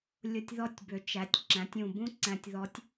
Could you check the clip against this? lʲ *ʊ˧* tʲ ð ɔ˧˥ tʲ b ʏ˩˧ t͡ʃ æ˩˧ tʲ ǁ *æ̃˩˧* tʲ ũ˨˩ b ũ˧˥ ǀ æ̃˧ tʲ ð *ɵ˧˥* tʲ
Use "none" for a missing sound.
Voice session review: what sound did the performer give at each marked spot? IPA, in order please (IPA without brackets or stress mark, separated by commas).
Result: ʊ˧, æ̃˩˧, ɔ˧˥